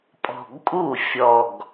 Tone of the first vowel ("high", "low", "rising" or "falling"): low